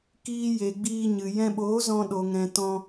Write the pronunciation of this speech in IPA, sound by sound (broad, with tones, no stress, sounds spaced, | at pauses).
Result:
k iː˧ j e˨ ɡ͡b iː˧ ɲ ɨ˨ j ɛ̃˧ ɓ oː˨˦ z ɔ̃˧ ɗ o˨ ŋ ɛ̃˨ t ɔ̃˧